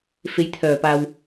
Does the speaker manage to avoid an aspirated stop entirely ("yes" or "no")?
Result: no